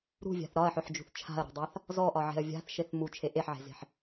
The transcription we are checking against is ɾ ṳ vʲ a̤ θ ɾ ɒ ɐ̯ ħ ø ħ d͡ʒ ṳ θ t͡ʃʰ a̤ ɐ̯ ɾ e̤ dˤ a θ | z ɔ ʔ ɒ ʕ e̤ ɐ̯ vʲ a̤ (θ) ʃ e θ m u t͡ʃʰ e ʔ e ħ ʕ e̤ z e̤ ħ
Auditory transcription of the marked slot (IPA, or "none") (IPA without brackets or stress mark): θ